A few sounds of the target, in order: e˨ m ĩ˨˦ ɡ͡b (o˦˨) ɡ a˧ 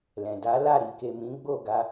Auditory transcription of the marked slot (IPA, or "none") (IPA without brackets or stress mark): o˦˨